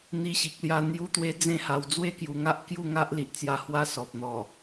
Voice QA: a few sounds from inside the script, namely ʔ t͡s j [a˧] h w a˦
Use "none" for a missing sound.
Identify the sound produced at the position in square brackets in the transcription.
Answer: a˧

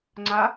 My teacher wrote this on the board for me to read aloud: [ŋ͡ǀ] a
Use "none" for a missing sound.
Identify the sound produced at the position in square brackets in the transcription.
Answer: ŋ͡ǀ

